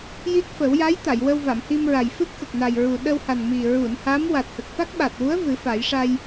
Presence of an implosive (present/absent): present